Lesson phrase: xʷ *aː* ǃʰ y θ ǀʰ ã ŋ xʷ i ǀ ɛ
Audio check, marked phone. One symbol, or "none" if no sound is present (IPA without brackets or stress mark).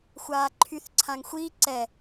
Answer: aː